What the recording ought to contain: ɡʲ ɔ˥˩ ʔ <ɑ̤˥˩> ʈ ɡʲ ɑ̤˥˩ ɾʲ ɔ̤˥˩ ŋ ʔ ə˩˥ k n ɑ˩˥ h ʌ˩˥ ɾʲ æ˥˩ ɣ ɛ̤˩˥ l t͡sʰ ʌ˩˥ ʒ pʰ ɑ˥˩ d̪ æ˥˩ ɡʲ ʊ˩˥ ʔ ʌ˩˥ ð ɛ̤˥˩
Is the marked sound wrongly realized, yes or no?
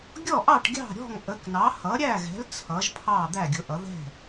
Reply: yes